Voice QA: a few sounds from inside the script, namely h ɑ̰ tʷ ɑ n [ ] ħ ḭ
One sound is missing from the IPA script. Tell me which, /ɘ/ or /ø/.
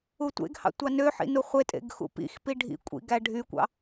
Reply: ø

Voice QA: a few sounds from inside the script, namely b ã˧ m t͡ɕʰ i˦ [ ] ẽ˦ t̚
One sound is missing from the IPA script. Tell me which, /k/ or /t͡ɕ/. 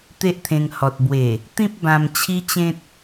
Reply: t͡ɕ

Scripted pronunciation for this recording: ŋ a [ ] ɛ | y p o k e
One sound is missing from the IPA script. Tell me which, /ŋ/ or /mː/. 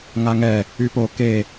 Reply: ŋ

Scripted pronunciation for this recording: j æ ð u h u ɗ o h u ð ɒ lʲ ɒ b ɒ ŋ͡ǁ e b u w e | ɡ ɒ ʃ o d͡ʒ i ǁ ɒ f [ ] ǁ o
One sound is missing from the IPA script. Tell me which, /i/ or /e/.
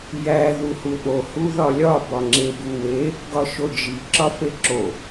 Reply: e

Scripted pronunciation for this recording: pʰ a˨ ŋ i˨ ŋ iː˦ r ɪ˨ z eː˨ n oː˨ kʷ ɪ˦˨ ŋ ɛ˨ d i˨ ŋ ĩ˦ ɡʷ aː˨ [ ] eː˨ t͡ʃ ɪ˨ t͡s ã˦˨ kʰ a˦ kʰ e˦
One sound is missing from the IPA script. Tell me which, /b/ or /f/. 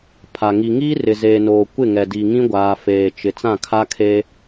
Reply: f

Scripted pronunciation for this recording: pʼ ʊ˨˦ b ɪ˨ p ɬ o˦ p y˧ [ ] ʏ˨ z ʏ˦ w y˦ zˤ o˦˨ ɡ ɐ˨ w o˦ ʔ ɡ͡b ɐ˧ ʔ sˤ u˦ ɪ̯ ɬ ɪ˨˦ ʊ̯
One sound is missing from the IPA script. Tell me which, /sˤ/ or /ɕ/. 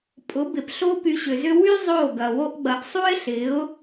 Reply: ɕ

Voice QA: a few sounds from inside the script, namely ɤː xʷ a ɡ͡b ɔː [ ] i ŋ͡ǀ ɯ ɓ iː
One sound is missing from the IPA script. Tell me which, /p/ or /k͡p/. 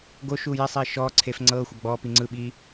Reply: p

